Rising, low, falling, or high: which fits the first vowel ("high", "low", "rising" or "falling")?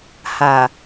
low